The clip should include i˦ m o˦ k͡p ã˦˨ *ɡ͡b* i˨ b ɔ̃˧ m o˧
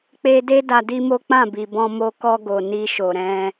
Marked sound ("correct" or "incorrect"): incorrect